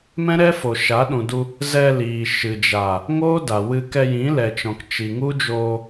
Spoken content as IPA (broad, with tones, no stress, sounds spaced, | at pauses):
m ɛ̃˦ ɾ ɛ˦ f o˨ ʃ a˨˦ ɗ ũ˨ d u˧ | z ɛ˧ l iː˨ ʃ ɨ˨ d͡ʒ a˨ | ŋ oː˦ d a˨ w ɨ˧ k ɛ˧ j ĩ˨˦ l ɛ˨ t͡ʃ ɔ̃˨ k t͡ʃ i˨ ŋ u˦ d͡ʒ oː˧